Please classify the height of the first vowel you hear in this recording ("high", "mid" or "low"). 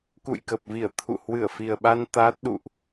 high